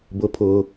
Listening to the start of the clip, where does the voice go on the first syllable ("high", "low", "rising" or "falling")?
high